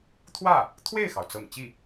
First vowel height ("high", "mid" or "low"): low